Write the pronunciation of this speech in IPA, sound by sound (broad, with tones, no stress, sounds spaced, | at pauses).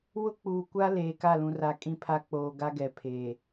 w ʊ˦ k͡p uː˨ kʷ a˦ l eː˨ k a˦˨ l ũ˨ r a˨ kʼ ĩ˦ pʰ a˦ k͡p oː˨ ɡ a˦ ɡ ɛ˨ pʰ eː˨